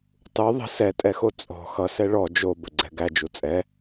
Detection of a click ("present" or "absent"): present